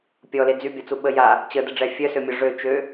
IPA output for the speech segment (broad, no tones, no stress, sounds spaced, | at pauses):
pʲ ɔ l e d͡z y bʲ ɔ t͡s u ɓ ə j a | t͡ɕ ə d ə ɖ͡ʐ ɛ fʲ œ s ø mʲ ɔ ʐ ø t͡ʃ ø